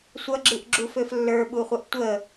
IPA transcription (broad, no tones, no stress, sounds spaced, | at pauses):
sʷ ʌ ɡ͡ǁ ɨ ʔ ɡ͡ǁ u f ø f lː ə˞ ɓ u χʷ ə ʔ tʷ ə